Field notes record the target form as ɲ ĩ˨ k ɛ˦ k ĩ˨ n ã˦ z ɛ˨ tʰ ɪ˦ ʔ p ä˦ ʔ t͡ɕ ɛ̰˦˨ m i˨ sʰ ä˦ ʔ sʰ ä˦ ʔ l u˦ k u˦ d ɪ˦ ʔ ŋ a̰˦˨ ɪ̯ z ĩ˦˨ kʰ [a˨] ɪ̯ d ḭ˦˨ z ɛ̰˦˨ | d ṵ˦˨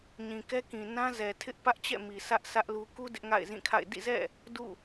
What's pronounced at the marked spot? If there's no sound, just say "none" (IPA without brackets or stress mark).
a̰˦˨